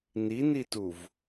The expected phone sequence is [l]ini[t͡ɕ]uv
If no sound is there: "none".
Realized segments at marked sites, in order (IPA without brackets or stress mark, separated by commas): n, t